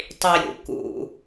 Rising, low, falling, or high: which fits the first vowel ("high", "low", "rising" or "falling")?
low